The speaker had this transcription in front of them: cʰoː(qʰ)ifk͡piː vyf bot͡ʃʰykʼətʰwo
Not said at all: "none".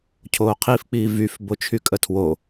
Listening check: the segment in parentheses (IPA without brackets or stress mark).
qʰ